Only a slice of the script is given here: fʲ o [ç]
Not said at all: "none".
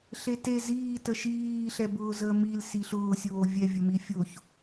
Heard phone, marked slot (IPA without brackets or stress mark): ç